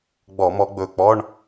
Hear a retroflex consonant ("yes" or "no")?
yes